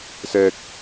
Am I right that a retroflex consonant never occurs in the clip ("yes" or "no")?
yes